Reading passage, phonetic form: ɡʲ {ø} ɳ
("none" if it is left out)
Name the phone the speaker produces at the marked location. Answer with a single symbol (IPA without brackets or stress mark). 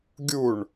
u